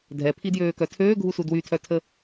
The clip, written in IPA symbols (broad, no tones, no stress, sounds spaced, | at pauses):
dʱ ɛ pʰ i d j øː k œ tʰ øː ɡʱ u s u d w y tʰ œ tʰ ə